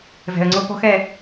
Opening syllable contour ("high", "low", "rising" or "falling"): low